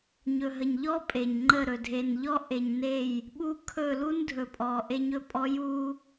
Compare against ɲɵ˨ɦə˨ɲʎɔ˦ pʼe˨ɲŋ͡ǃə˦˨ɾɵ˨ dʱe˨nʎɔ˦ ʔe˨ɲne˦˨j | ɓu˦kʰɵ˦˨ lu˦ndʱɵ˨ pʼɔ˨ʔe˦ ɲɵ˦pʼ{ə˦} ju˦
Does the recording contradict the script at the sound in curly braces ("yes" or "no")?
yes